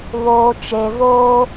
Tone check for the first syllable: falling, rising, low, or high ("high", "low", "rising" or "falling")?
low